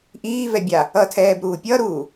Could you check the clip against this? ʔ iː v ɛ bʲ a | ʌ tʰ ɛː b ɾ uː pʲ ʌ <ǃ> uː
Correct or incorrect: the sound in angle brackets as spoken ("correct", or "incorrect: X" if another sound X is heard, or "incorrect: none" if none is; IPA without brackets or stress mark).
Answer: incorrect: ɾ